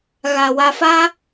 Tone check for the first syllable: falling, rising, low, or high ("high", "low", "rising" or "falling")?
low